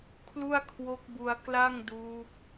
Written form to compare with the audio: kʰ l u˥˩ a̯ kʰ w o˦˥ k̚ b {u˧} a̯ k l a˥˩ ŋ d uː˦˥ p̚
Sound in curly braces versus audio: correct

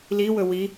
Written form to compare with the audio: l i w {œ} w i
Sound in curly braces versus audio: incorrect: ɵ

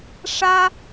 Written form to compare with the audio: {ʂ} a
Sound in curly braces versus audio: correct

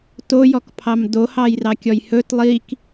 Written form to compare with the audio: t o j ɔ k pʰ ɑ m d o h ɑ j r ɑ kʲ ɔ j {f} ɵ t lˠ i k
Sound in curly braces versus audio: incorrect: h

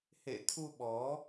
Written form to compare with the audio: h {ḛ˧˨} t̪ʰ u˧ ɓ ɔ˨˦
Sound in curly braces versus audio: correct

